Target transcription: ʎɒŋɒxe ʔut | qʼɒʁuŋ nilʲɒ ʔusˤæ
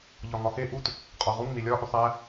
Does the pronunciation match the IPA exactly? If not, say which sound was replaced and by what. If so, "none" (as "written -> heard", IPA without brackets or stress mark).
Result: none